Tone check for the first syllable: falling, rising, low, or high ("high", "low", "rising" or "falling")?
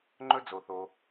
high